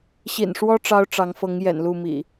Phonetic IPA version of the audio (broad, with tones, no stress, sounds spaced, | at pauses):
ɕ ḭ˨˩ n ʂ w ɔ˦ ʈ͡ʂ ɑ˦ ʊ̯ ʈ͡ʂ ɑ˨˦ ŋ f ɤ˨˦ ŋ j ɛ̰˨˩ n l u˥˨ m ḭ˨˩